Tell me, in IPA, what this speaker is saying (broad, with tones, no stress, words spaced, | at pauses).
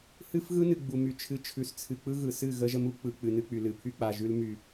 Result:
hɨ˦fɣɯ˦nɨ˨ ɡ͡bu˨my˨t͡ʃʰɨ˨˦ t͡ʃʰʉ˨st͡sʰɨ˨ k͡pɯ˦ɣɯ˨sɨ˦˨ ɣə˦ʒə˦m u˦k͡pɯ˨ k͡pɨ˨nɨ˦k͡py˨ lɨ˨pʰy˦k͡pa˨ʒʉ˦l my˨